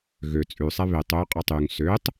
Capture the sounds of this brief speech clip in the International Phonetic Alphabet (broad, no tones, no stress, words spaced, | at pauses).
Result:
ɣø t͡sʼʉsˤɛ βetˤ øqʼɑtˤ yŋ søtˤ